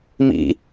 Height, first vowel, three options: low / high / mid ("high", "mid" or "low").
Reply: high